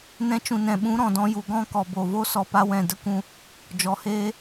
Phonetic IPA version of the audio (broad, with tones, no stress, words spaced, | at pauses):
nɛ̃˧t͡ʃũ˨nɛ̃˨ ɓũ˨˦ɾɔ̃˨dɔ̃˧ ju˨ɡɔ̃˦kɔ˨ bo˨vo˦ sɔ˧pa˦wɛ̃˦˨ də˦˨kʷũ˧ | d͡ʒɔ˨heː˦